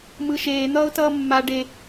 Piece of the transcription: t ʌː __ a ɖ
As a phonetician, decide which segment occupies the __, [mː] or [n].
mː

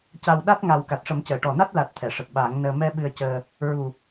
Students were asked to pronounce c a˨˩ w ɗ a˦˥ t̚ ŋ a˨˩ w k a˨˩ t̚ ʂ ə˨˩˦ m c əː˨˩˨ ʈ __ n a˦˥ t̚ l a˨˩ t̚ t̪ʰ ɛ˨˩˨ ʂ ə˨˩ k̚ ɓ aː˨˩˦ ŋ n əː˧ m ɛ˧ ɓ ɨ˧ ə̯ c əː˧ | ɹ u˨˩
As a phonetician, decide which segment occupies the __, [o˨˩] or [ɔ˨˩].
ɔ˨˩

